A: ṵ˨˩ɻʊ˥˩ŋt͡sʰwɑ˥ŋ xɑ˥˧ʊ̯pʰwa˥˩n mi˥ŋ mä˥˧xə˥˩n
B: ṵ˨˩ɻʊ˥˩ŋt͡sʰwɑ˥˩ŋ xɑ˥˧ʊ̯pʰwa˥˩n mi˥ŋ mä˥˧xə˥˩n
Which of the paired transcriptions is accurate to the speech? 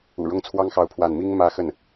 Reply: A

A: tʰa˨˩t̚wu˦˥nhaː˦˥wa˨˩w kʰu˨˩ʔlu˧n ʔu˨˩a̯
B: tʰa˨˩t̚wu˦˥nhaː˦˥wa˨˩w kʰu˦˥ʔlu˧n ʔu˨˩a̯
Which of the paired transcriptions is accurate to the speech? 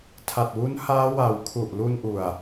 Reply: A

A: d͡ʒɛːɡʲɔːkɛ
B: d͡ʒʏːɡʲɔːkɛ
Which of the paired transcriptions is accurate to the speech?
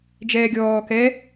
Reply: A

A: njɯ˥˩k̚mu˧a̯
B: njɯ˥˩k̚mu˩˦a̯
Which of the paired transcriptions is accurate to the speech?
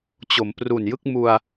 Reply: A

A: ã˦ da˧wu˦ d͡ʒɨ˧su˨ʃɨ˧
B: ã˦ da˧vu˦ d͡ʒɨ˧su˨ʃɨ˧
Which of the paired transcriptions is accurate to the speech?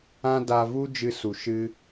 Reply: B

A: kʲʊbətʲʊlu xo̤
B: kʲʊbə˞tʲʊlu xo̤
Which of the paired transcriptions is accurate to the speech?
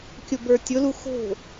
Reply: B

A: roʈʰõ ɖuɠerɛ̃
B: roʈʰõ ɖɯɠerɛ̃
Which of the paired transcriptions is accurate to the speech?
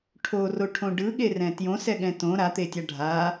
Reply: B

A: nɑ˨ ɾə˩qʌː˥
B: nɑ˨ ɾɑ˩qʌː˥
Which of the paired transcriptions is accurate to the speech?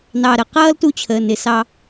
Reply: A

